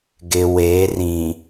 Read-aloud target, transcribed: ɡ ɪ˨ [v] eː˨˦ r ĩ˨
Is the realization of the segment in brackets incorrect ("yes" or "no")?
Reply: yes